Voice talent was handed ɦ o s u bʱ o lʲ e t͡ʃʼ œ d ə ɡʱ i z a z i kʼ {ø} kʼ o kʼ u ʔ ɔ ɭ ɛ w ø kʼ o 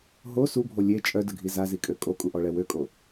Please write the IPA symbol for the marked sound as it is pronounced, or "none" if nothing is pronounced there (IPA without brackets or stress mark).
ø